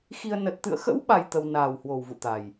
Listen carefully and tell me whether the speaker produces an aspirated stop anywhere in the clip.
no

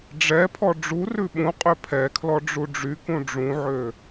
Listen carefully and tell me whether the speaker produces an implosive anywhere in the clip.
yes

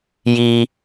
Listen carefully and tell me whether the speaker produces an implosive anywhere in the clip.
no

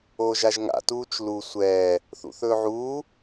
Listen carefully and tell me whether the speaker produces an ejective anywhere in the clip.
no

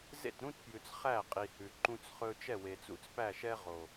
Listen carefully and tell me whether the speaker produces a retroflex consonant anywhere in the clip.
no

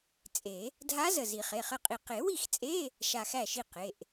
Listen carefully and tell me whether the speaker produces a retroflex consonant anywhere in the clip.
no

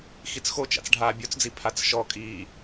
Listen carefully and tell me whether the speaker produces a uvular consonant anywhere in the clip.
no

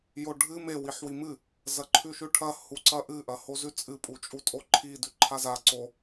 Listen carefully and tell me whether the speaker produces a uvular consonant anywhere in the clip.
no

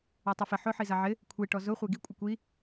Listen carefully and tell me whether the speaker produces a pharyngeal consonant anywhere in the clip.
yes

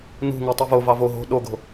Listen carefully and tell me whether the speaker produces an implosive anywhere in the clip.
yes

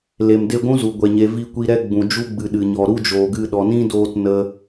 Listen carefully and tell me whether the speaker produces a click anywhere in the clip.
no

